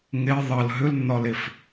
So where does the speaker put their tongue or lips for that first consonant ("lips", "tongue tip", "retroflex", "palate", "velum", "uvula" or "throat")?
velum